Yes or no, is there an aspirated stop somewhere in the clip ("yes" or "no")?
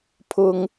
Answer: yes